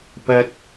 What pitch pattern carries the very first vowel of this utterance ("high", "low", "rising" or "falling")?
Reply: low